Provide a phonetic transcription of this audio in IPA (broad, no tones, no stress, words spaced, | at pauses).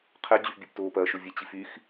qʰɛ d͡ʑyfbʲɛptoːpɐː ʃʊvʲet͡ɕifyx